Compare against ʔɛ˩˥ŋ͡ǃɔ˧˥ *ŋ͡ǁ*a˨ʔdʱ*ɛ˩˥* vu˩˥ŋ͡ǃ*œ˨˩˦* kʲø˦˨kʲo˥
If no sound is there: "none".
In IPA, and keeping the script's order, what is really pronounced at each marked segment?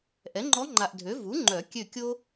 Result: ŋ͡ǃ, ø˩˥, œ˨˩˦

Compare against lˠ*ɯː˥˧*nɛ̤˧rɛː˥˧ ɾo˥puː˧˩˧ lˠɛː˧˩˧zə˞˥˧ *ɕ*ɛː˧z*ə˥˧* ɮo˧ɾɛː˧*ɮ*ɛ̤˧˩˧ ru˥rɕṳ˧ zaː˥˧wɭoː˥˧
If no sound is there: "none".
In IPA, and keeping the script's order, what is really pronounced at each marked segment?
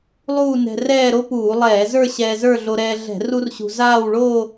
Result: uː˥˧, ɕ, ə˞˥˧, ɮ

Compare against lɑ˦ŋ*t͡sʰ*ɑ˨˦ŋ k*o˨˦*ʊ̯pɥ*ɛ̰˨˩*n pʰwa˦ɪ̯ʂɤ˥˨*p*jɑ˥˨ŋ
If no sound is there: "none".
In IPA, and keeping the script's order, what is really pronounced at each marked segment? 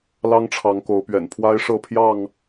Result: ʈ͡ʂʰ, o˨˦, ɛ̰˨˩, pʰ

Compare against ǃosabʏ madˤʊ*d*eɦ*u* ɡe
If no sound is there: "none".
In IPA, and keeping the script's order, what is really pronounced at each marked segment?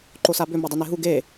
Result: n, u

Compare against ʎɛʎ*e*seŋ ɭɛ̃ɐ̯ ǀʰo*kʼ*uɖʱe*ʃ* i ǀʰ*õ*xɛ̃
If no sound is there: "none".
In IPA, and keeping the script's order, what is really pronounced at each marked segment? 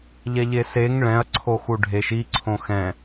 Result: e, x, ʃ, õ

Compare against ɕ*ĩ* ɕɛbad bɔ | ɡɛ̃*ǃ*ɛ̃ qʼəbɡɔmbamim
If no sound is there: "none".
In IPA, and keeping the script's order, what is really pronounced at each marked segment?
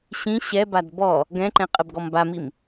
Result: ĩ, ǃ

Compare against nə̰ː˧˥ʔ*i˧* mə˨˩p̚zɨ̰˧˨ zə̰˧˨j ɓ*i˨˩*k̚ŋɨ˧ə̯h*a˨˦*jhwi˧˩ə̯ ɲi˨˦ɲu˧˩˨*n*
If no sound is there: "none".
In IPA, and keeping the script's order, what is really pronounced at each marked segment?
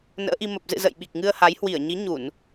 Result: i˧, i˨˩, a˨˦, n

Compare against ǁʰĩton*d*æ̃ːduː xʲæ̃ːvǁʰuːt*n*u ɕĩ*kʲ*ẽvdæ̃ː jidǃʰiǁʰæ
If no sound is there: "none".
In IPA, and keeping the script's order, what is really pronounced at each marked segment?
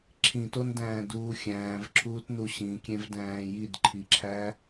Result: d, n, kʲ

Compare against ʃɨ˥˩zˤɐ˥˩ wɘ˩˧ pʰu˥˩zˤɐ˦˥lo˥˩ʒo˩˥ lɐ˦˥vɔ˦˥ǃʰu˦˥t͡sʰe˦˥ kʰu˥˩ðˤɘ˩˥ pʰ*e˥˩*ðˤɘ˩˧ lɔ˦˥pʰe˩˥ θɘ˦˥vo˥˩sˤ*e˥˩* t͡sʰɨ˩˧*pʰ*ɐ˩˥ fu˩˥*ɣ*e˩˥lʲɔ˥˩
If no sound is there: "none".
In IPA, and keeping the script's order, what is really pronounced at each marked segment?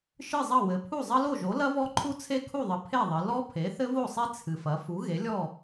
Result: e˥˩, e˦˥, f, ɣ

